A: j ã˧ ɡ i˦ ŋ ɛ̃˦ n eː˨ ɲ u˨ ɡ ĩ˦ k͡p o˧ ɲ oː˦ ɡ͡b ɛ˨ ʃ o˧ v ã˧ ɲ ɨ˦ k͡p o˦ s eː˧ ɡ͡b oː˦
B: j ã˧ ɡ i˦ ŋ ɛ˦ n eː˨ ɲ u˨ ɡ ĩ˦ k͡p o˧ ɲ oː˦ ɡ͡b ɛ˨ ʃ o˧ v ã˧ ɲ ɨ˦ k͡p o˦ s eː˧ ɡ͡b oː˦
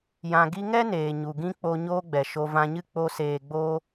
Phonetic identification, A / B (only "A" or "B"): B